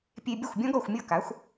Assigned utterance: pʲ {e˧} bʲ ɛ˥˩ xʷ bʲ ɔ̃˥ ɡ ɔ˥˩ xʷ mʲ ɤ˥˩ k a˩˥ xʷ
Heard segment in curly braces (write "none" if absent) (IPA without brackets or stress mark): e˧